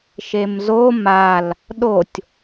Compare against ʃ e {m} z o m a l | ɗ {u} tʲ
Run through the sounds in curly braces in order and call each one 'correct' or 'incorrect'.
correct, incorrect: o

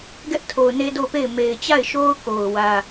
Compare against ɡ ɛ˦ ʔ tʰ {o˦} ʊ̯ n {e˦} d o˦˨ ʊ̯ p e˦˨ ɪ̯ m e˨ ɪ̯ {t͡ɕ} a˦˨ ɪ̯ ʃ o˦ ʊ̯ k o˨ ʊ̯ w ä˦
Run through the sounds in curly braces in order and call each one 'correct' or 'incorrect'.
incorrect: o˨, correct, correct

